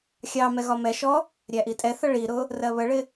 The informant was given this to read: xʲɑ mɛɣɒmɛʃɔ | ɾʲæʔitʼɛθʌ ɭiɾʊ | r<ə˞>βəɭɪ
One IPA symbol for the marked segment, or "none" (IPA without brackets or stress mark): ɜ